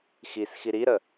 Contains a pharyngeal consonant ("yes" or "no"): no